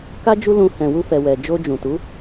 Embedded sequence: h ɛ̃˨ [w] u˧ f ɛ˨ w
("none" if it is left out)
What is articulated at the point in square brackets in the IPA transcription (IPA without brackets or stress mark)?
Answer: w